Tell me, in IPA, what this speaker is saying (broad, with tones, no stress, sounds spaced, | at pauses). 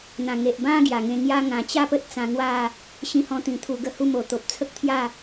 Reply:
n̪ ã˨˩ ŋ e˨ ʔ b ã˧ ɡ j a˨˩ ŋ ẽ˧ ŋ j a˦ ŋ ã˨˩ t͡ɕ a˥˧ p ə˦ t̚ t͡s ã˧ ŋ w a˥˧ | ɕ ĩ˧ h ɔ̃˧ t̪ ĩ˨˩ t̪ʰ u˧ ɡ ə˦ h u˥˧ m o˨˩ t̪ o˨ p̚ t͡sʰ ə˦ k̚ t̪ʰ j a˥˧